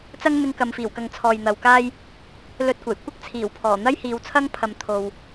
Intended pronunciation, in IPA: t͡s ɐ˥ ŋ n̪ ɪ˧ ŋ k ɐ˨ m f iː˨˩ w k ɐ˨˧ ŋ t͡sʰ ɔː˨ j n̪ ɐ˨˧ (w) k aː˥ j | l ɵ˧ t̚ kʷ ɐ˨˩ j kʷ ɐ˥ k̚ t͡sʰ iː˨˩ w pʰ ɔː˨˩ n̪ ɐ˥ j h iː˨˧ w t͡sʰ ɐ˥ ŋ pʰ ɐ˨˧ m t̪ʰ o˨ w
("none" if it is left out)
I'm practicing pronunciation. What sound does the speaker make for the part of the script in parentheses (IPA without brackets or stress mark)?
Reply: w